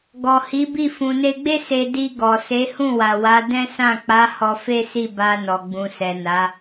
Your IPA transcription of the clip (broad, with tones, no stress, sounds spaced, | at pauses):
ɡ ɔ˨ h i˨˦ b i˦˨ f ũ˨ n e˧ ɡ͡b e˦ s e˧ d i˧ ɡ ɔ˨ s e˨˦ h ũ˦˨ w a˨ w a˨˦ d ɛ̃˦ s ã˦˨ k͡p a˨˦ h ɔ˧ f e˦ s i˦˨ b a˧ n ɔ˨ ɡ͡b ũ˨ s ɛ˨ n a˨˦